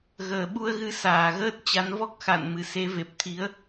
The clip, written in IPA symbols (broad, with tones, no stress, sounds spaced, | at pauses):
ɣ əː˧˩ ɓ u˧ ə̯ ɣ ɨ˨˦ s aː˧˩ ɣ əː˦˥ t̚ t͡ɕ a˨˦ n v ɔ˦˥ k̚ x a̰˧˨ n m ɨ˧˩ s e˨˦ v e˨˩ p̚ t̪ʰ i˨˦ ə̯